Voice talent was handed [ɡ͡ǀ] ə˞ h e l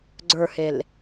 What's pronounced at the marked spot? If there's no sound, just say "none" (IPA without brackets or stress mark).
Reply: ɡ͡ǀ